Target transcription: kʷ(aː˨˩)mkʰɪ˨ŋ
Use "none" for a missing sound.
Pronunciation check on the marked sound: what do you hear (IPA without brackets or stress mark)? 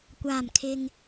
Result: aː˨˩